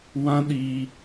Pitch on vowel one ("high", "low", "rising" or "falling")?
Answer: high